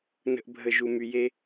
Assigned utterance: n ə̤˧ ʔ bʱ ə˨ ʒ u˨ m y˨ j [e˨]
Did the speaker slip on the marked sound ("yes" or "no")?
yes